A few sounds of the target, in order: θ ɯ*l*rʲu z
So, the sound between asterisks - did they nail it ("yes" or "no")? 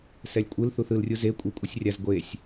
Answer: yes